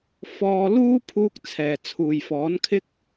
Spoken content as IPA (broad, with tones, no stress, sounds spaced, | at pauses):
f ɔː˧ l uː˥ pʰ uː˧ k̚ t͡sʰ ɛː˨˩ t͡sʰ uː˨˩ j f ɔː˨˥ n kʰ ɪ˥ k̚